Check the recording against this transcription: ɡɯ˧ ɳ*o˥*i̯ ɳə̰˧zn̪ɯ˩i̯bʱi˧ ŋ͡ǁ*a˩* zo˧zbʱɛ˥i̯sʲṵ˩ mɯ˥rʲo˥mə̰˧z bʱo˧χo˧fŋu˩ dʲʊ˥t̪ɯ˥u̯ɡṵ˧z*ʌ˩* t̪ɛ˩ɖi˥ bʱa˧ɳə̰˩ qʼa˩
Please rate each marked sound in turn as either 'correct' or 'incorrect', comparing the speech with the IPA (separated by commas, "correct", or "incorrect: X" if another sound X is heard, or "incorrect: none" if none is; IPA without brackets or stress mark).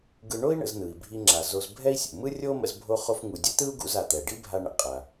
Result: correct, correct, incorrect: a˩